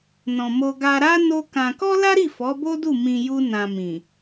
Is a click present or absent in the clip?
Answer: absent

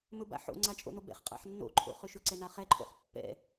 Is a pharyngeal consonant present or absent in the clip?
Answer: present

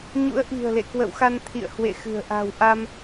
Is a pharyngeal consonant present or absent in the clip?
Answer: absent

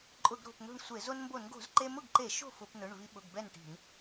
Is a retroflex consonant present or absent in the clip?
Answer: present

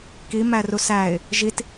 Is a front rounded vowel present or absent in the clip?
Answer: absent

